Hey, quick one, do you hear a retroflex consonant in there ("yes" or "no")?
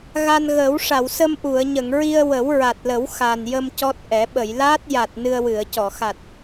yes